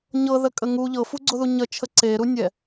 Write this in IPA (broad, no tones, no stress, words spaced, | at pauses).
ɲɤðəkʼə ŋu ʎɤfuɡ͡ǀoðu ɲət͡ʃʰə ǀeɾunʲɛ